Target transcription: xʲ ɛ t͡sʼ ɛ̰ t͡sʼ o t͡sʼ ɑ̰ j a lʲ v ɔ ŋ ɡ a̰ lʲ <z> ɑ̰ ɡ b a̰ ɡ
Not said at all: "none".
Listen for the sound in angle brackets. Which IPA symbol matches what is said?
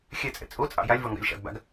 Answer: ʃ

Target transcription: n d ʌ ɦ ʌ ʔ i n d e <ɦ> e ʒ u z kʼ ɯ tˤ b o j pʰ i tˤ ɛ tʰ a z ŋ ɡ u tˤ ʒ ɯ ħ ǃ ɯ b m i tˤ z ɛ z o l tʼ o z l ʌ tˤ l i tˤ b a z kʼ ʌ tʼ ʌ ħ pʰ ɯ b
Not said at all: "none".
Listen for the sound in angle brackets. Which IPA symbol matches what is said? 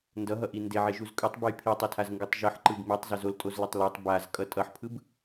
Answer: ʕ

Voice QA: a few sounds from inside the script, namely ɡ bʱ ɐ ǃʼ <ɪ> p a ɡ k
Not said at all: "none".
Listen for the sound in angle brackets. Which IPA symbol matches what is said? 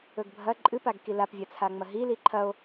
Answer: ɨ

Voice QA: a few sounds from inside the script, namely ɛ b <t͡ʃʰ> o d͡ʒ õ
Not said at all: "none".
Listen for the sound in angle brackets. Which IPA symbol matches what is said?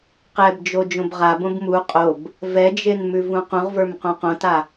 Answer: d͡ʒ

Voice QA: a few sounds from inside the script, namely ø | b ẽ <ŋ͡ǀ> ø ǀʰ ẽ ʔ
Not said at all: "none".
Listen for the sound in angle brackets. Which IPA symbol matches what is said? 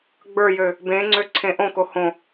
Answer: ŋ͡ǀ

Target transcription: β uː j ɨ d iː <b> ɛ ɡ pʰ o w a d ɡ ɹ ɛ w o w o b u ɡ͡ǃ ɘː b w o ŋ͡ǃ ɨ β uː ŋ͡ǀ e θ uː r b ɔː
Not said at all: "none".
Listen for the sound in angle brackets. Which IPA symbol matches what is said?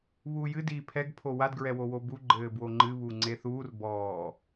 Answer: pʰ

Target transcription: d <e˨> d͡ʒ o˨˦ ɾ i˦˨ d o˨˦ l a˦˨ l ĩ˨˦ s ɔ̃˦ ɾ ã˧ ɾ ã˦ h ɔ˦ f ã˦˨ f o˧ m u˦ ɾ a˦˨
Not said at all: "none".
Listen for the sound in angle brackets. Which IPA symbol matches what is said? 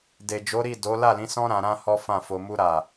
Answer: e˨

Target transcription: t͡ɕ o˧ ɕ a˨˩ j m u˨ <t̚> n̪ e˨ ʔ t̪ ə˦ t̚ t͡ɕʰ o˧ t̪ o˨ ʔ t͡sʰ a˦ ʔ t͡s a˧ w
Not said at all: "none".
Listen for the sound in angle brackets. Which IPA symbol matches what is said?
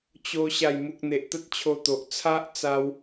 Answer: k̚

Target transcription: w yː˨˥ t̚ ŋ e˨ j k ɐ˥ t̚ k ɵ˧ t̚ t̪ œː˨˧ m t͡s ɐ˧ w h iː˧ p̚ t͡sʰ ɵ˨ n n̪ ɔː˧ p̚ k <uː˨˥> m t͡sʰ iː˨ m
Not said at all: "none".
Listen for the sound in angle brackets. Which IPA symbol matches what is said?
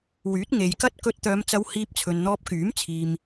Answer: yː˨˥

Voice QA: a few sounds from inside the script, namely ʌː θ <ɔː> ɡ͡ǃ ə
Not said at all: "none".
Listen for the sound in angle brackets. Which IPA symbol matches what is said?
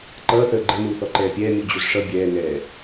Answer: əː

